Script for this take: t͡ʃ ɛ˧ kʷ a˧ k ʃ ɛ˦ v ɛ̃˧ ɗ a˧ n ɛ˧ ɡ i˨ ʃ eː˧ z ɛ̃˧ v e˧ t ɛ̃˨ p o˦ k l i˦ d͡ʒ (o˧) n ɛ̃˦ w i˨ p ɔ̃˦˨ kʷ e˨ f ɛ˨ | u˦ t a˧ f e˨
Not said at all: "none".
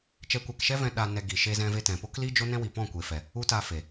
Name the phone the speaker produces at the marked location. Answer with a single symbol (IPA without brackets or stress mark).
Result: o˦